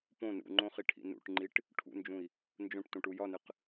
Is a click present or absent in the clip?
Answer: present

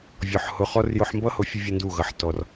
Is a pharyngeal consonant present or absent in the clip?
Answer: present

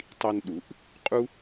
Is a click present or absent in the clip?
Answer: absent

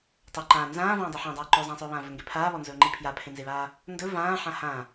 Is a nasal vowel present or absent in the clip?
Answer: present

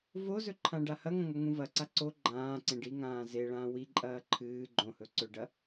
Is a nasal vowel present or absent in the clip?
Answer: present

